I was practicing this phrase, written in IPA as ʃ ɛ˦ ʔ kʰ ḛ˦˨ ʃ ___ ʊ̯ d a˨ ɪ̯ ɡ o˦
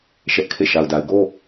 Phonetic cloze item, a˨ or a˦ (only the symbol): a˨